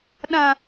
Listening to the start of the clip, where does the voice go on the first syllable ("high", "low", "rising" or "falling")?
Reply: low